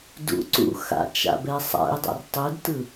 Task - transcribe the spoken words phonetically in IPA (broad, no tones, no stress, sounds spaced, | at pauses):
d ṵ ǀ ṵ x a̰ t͡ʃ a̰ b ɛ sˤ a̰ i̯ dˤ a̰ r tˤ u d t ɯ